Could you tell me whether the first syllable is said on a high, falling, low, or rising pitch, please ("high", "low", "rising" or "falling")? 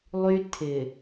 high